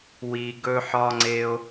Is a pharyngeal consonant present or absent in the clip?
present